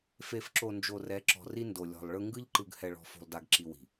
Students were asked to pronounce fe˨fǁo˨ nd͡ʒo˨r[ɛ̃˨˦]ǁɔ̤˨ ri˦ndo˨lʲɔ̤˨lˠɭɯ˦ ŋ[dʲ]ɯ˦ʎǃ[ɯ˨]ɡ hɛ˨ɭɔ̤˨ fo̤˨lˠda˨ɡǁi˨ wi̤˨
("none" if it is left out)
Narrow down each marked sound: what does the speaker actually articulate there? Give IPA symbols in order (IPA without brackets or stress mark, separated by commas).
ɛ˨˦, ɡ, ɯ˨